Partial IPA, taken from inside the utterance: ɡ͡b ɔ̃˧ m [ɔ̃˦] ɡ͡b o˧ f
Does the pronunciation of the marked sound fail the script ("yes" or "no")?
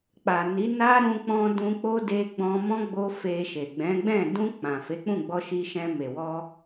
no